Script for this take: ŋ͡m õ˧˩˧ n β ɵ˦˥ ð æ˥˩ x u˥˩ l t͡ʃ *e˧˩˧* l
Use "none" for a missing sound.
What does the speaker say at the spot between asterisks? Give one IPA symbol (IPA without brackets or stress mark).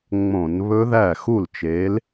e˨˥